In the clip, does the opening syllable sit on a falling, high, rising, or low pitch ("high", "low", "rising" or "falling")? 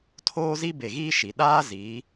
high